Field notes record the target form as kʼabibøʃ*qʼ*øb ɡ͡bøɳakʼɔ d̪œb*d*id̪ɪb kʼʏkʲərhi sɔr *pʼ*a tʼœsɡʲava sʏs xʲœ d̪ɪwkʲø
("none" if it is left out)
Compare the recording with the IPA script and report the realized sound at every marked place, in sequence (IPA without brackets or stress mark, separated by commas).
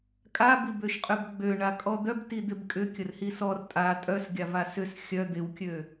qʼ, t, tʼ